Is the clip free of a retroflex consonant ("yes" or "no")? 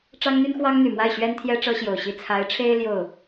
no